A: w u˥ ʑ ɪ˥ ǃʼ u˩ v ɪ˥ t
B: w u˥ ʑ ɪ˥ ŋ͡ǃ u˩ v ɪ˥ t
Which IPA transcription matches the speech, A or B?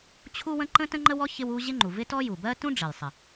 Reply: B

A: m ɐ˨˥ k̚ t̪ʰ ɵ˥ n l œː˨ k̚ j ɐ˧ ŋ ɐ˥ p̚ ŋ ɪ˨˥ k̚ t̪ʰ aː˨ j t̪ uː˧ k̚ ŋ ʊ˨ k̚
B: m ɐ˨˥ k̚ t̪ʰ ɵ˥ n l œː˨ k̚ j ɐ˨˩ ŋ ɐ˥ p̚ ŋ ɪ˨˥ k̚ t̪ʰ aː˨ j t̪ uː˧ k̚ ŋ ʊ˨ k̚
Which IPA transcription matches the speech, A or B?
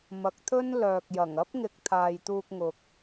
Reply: B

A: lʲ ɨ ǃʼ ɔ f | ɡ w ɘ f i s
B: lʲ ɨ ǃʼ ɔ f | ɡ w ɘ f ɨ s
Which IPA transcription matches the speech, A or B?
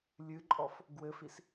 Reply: A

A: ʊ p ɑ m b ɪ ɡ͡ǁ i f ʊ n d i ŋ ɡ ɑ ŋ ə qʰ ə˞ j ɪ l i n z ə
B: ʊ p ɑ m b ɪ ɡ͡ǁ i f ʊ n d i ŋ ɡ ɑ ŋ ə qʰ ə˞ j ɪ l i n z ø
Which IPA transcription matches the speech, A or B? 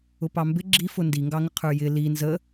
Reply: A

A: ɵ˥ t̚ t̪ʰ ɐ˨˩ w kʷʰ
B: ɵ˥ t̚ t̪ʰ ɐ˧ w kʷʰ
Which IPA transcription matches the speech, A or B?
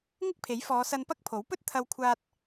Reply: B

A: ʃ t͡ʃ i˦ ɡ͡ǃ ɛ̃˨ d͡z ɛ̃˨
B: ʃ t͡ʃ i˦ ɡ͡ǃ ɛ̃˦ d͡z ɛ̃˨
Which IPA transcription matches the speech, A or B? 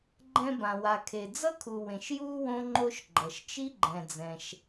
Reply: A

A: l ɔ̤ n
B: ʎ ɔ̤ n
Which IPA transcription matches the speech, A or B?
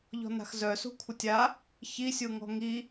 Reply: B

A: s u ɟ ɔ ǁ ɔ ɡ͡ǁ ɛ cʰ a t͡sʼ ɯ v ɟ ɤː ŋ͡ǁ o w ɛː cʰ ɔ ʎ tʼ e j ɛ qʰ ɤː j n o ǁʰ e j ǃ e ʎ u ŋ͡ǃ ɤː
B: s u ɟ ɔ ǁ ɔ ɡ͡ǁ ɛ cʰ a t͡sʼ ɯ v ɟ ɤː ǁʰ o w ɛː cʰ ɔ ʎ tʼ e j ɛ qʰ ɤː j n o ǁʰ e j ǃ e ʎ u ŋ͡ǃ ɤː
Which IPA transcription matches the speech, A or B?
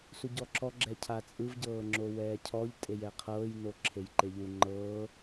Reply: A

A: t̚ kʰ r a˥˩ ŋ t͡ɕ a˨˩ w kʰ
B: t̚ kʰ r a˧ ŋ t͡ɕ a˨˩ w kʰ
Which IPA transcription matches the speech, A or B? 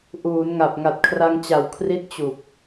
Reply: B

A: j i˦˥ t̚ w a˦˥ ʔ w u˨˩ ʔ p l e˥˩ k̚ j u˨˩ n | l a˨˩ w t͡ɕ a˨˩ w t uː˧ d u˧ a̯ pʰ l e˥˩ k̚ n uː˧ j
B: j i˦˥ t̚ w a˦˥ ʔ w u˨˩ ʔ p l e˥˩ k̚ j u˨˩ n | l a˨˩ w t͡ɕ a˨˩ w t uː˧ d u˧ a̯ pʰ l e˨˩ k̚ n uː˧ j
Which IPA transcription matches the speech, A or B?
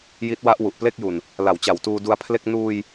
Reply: A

